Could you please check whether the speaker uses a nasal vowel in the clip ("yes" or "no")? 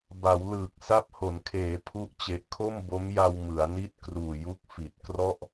no